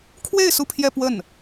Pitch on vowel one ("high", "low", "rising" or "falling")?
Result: falling